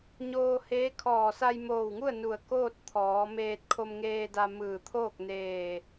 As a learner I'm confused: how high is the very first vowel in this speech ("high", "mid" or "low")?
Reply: mid